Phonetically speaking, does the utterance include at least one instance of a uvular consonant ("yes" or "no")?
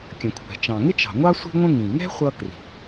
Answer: yes